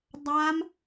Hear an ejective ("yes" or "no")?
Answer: no